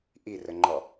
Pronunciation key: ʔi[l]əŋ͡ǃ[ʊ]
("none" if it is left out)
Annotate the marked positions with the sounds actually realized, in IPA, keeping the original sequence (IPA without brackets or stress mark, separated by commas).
r, ɔ